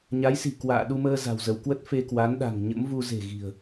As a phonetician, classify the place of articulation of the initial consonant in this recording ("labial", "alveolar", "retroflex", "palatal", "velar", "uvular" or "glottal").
palatal